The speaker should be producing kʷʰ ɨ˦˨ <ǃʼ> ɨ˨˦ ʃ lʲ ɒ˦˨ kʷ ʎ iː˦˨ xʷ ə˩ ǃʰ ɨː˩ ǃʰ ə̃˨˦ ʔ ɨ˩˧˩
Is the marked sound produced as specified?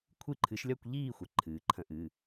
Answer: no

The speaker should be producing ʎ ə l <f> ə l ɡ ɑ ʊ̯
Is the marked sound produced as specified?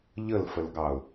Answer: yes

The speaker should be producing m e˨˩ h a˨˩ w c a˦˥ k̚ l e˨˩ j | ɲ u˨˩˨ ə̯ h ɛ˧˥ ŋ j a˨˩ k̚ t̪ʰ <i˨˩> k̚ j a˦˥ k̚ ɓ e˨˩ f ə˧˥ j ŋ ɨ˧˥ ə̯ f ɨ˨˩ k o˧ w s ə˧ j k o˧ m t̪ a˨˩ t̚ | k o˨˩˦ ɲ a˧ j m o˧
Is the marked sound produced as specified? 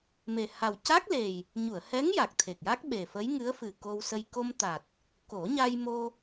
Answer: no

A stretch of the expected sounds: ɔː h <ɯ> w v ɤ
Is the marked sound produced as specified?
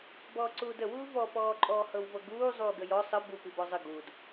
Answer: no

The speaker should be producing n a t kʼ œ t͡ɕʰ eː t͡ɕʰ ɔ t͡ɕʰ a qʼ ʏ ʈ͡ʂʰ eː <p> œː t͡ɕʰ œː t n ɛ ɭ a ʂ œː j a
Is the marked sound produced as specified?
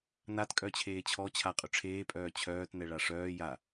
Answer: no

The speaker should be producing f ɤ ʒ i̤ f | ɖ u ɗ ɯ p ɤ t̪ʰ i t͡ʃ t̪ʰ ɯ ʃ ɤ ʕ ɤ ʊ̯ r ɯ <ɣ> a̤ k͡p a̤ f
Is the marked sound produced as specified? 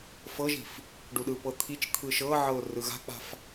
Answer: yes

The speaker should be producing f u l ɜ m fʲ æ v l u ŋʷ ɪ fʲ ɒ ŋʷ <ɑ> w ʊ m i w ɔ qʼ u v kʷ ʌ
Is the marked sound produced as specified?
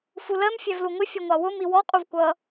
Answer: yes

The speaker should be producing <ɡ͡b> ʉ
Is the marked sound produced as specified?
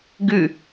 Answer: no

